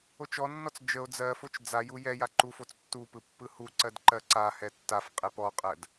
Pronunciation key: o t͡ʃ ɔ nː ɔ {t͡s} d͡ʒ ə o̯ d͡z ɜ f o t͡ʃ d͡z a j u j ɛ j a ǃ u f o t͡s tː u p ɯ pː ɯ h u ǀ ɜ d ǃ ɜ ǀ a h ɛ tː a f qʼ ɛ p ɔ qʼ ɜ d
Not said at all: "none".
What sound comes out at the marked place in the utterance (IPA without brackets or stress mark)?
t͡s